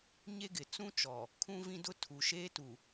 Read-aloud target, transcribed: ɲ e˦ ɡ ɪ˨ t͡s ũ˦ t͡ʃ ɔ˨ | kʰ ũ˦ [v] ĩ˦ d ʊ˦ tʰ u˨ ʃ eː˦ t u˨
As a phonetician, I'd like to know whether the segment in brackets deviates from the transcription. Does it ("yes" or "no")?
no